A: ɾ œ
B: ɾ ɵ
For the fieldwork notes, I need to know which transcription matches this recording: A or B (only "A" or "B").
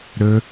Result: B